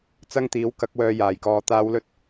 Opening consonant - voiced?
no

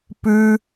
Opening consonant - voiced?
no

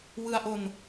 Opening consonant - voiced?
yes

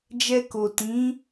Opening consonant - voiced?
yes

